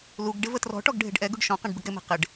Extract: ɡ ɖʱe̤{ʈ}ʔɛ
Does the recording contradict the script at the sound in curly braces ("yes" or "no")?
yes